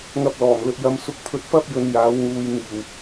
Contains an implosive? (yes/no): no